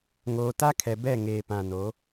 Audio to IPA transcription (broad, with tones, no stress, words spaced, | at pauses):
ŋoː˨ta˦kʰɛ˨ bɛ˦˨ŋeː˨pã˨no˨˦